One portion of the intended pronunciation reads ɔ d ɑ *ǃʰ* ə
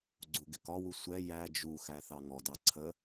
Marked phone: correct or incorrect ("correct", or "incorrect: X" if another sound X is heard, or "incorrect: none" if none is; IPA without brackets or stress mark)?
incorrect: ǀʰ